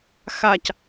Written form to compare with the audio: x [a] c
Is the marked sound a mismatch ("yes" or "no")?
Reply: no